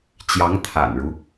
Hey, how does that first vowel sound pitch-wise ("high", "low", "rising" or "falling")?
rising